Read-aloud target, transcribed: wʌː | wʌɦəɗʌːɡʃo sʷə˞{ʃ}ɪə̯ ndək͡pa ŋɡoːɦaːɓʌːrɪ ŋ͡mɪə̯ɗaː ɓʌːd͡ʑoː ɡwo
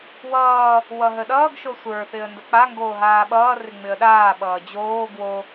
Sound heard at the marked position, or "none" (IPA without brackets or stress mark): θ